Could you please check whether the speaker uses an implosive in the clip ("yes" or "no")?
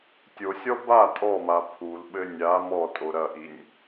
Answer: yes